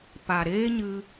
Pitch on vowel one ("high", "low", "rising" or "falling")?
low